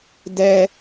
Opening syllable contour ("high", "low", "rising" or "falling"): high